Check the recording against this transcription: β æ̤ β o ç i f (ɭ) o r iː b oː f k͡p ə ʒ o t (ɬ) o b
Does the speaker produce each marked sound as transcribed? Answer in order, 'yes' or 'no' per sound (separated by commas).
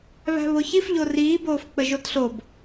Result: no, yes